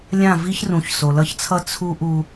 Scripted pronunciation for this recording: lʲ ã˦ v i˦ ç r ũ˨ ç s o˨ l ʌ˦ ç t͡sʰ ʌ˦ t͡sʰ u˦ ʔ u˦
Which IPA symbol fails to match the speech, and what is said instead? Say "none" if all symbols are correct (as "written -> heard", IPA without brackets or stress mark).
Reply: ã˦ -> ã˦˨